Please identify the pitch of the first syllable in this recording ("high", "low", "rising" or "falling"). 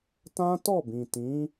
high